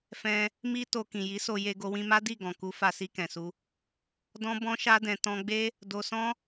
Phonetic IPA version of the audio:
f ɛ̃˧ | m i˦ t o˧ k ĩ˨ j i˨˦ s o˧ j e˧ ɡ o˧ w ĩ˧ m a˦ d i˦˨ ɡ ɔ̃˨ k u˨˦ f a˧ s i˧ k ɛ̃˨ s u˧ | d ɔ̃˦ b ɔ̃˦ ʃ a˦ d ɛ̃˧ t ɔ̃˧ ɡ͡b e˦ | d o˧ s ɔ̃˦

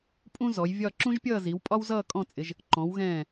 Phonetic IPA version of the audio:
pʼ ũ˥ z ɔ˩˧ j vʲ ɒ˥˧ ǁ ũ˥ ʒ pʲ ʌː˥˧ z i˩˧ w pʼ ɒ˥ w z ʌː˥˧ kʼ ɔ̃˥˧ t͡sʼ ɪ˩˧ ʒ | ǃ ɔ̃˩˧ w ɣ ɛ̃ː˧˩

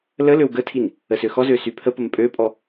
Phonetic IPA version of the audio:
l ə l ø w ɡ ə tʰ i n | ə s ø x ɔ z ø s y pʰ ə p ə m pʼ ø pʼ ɔ

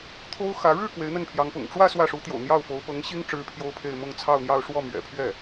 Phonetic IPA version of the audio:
t̪ʰ o˥ ʊ̯ x ä˧˥ ɻ ɻ̩˥˩ k w e˧˥ ɪ̯ n̪ ə˥˩ n pʰ j ɑ˧˥ ŋ p ʊ̰˨˩ ŋ ʈ͡ʂ w ä˥˧ s w ä˥˩ ʂ u˧˥ t̪ j o̰˨˩ ʊ̯ n̪ j ɑ˥˩ ʊ̯ f o˧˥ ʊ̯ p ɤ˧˥ ŋ ɕ i˥ ŋ ʈ͡ʂ ɻ̩˥ pʰ j o˥ ʊ̯ pʰ e˥˧ ɪ̯ m ʊ˥˧ ŋ t͡sʰ ɑ˥˧ ʊ̯ n̪ j ɑ˥˧ ʊ̯ ʂ w ɔ˥˩ m ɥ ɛ̰˨˩ pʰ ɥ ɛ˥˩

